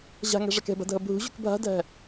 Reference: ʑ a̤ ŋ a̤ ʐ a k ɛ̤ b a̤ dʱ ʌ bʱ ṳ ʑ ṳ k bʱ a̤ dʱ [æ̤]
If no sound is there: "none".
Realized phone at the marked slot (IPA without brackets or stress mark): æ̤